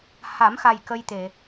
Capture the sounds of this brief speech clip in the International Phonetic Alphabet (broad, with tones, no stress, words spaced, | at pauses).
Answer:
ha˨˩˦mxa˨˩j kə˧jt̪e˨˩˨